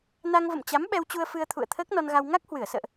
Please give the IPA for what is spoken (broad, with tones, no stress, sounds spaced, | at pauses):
n a˧ ŋ v ə̰˧˨ m t͡ɕ a˨˦ m ɓ ɛ˧ w t͡ɕ u˧ ə̯ f ɨ˧ ə̯ t̪ʰ ṵ˧˨ ə̯ t̪ʰ əː˦˥ k̚ n ɔ˧ n ɣ a˧ w ŋ a˦˥ k̚ h w ɨ˧˩ ə̯ s ə̰ː˧˨ ʔ